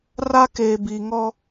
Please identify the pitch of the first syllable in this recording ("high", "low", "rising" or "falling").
high